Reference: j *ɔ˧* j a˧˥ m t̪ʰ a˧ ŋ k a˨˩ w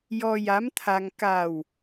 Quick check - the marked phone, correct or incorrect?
correct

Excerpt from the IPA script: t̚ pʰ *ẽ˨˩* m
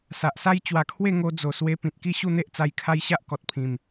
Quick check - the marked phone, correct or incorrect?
incorrect: ĩ˨˩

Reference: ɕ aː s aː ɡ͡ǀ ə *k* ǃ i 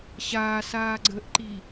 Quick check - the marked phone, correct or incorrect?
incorrect: ʔ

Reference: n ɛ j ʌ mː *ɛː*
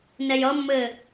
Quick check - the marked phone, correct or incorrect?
incorrect: ɘː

